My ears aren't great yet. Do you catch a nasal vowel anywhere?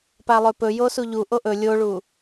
no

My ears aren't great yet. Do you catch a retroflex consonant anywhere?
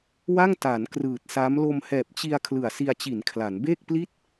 no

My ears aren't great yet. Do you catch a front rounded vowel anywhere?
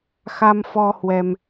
no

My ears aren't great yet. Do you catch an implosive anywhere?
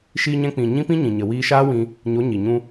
no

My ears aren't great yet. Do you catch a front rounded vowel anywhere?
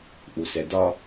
no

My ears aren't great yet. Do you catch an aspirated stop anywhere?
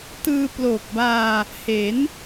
no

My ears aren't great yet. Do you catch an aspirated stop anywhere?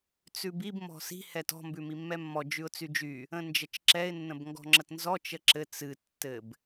no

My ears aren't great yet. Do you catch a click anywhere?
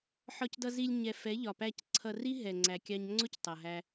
yes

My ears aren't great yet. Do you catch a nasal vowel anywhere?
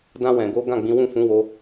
yes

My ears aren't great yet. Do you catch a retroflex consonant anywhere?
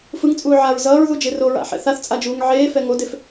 no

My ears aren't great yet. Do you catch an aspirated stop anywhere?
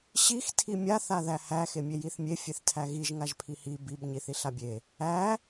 yes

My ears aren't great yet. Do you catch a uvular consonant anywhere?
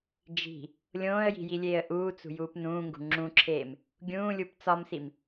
no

